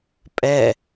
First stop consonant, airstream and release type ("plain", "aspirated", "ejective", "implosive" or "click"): ejective